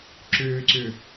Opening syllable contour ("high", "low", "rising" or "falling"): low